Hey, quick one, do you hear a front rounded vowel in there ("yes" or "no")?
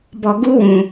no